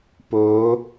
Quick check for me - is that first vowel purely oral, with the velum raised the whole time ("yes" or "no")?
yes